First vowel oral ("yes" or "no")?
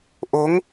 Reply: yes